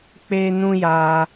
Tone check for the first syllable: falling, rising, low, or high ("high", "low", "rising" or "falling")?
high